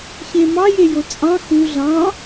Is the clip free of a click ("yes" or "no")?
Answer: yes